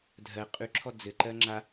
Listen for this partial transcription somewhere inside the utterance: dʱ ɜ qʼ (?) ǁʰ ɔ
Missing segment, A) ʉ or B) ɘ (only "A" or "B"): A